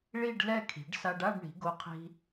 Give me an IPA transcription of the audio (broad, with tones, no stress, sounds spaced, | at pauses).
ɭ i˥˧ ɖ l ɛ˥˧ kʰ i̤˩˧ ɖ s a˧ ɖ a˥˧ ɖ ɳ i̤˩˧ ɡ o˧ qʰ i̤˧